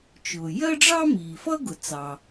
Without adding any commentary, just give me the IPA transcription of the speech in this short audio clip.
t͡ʃ ʊː˩ j ɜ˥ ɖ͡ʐ ɑ˥ m iː˩ f ʌ˥ ɡ ʊ˩ t͡s ɑ˩

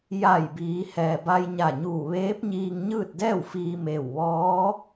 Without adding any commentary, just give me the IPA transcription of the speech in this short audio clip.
j a˧˩ j b iː˩˧ h ɛː˩ b a˧ j ɲ a˧˩ ɲ uː˧˩ ʋ eː˧˥ p̚ ɲ iː˧ ŋ ɲ ɯː˥˨ t̚ d ɛː˥˨ w f iː˧ m eː˧˩ w ʋ ɔː˧˥

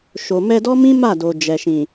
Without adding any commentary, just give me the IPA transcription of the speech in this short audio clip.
ʃ o˨ m ɛ˧ d ɔ˦ m ĩ˦ m a˦˨ d o˨ d͡ʒ ɛ˨ ʃ ĩ˨

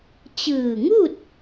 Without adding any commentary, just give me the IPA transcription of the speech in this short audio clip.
t͡ɕ ɯː˧˩ ŋ u˥˨ t̚

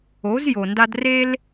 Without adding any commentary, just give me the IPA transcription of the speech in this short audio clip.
o˩˥ z j o˩ n d a˥ d r e˥ l

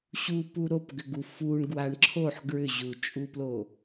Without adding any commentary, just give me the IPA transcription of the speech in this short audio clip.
ɕ u p u ɾ o p ɡ ʏ ɡ u f u ɳ ɡ w a ɳ ǁʰ o ħ ɡ ɹ ʏ ʑ u t͡ʃʼ u p l o

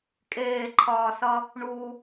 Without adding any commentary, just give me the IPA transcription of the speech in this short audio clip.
kʼ eː ǃʰ ɒː s ʌ | ɳ u

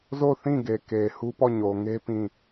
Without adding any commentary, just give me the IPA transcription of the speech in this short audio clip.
z o˦˨ θ ĩ˦˨ ɡ e˨ k e˨ h u˦ p ɔ˦˨ ɲ o˨ ŋ e˦ p ĩ˦˨

